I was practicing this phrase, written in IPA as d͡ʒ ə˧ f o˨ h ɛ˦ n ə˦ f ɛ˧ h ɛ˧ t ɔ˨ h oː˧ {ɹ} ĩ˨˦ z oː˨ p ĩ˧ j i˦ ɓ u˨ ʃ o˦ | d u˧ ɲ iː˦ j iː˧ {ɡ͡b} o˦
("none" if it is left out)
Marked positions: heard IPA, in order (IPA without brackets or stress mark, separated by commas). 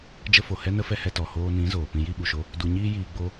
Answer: n, ɡ͡b